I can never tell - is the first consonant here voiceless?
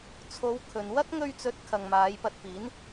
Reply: yes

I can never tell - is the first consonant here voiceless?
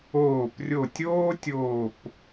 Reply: yes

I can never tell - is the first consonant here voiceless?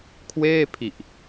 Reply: yes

